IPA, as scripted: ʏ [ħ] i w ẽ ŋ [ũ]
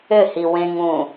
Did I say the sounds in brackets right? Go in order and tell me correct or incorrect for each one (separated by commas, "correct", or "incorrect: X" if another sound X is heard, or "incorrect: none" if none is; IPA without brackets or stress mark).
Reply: incorrect: h, correct